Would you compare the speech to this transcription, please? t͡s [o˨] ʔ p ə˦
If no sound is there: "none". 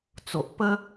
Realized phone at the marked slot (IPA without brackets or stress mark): o˨